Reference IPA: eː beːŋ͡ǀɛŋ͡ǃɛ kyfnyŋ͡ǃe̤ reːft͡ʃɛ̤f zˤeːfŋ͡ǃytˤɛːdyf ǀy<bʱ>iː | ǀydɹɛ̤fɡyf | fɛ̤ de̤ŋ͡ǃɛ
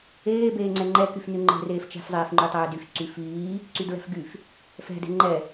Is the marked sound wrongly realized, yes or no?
yes